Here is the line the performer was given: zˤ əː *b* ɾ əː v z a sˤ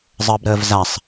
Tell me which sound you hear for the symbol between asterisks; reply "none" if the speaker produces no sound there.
b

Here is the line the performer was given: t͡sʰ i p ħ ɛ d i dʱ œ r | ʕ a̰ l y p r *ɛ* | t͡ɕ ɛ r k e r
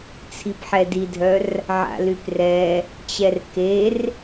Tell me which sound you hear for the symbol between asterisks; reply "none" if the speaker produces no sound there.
ɛ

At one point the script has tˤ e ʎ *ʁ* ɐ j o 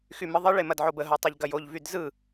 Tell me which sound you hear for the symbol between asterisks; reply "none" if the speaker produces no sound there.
ɡ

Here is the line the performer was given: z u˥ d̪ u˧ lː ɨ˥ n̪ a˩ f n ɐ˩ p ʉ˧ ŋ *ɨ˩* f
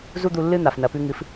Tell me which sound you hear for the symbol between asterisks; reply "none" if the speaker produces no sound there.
ɨ˩˥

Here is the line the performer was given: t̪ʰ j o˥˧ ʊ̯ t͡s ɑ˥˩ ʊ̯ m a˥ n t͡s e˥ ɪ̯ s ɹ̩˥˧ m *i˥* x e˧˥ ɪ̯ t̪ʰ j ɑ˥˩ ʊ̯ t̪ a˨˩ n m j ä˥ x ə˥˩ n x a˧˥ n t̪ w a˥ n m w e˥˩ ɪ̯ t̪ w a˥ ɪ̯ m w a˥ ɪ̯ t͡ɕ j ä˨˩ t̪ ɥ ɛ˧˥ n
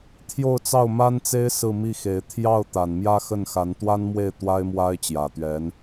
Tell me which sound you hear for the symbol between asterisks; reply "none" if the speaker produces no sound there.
i˥˩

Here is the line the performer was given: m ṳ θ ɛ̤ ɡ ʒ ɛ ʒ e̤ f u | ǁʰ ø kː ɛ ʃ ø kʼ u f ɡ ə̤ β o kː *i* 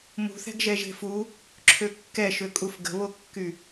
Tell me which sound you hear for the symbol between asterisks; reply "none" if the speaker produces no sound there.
y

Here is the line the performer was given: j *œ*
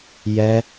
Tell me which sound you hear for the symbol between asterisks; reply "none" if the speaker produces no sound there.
ɛ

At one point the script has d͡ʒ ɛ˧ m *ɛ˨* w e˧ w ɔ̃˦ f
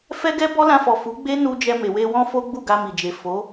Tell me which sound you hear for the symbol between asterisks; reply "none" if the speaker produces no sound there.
e˨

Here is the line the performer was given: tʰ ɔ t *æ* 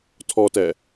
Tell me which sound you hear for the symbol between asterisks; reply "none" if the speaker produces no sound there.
ɛ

